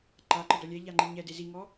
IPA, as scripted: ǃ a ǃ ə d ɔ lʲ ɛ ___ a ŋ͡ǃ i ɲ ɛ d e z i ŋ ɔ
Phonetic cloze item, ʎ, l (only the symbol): ʎ